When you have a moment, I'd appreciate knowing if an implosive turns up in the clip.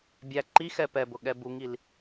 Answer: yes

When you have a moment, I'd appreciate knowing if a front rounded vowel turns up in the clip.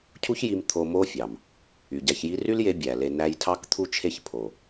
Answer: yes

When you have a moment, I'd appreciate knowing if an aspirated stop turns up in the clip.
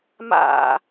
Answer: no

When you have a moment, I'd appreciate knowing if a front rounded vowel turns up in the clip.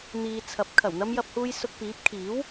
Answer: no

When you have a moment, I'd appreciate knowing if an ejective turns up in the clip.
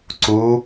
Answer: no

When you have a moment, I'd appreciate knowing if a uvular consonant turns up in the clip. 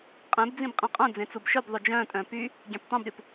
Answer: yes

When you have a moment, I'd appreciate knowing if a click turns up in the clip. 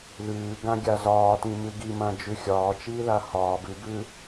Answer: no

